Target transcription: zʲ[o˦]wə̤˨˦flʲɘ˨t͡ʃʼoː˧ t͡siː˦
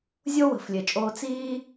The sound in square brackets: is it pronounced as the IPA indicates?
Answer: yes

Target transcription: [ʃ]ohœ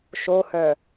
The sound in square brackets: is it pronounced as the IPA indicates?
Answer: yes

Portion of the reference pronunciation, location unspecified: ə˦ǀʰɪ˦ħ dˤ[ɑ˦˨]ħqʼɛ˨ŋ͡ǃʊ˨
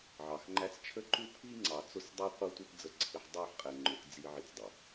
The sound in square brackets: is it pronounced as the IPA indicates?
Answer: yes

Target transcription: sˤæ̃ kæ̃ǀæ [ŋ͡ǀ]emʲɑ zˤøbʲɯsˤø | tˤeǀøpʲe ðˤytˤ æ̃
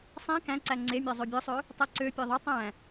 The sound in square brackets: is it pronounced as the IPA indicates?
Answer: yes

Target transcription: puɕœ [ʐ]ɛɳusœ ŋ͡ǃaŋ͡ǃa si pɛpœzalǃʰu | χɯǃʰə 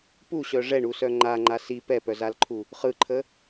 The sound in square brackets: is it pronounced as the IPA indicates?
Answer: yes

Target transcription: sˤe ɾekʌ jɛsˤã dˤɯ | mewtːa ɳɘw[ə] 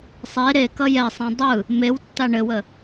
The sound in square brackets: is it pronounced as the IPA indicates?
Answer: yes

